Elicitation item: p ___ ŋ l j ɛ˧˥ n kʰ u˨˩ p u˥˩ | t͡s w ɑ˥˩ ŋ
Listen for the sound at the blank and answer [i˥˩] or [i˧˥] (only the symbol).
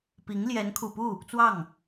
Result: i˧˥